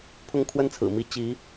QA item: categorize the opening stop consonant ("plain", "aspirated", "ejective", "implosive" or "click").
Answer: aspirated